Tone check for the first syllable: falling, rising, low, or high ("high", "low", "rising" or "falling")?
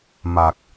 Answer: low